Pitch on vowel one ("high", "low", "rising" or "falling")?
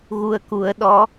low